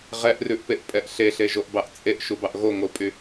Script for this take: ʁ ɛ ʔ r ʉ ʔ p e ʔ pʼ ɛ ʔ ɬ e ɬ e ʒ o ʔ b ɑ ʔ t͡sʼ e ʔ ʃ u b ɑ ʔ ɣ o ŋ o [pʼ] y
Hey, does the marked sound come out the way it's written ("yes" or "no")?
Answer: yes